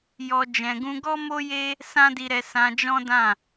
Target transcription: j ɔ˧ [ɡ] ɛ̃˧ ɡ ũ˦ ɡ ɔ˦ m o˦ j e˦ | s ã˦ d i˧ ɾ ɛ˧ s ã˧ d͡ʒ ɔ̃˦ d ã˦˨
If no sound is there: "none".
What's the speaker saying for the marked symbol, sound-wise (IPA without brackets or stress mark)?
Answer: d͡ʒ